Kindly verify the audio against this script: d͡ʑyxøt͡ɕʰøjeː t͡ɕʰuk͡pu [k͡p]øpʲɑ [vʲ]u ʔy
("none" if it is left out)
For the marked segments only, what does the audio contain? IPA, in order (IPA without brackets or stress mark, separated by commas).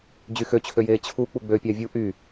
ɡ͡b, vʲ